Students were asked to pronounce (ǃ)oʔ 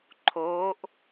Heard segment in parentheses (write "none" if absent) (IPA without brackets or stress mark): ǃʰ